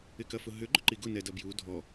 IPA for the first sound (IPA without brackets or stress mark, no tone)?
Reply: ɪ